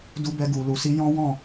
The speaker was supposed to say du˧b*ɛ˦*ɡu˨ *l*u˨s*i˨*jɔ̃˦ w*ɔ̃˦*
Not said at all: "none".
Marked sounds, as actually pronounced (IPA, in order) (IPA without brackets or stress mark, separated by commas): ɛ˧, l, i˧, ɔ̃˦˨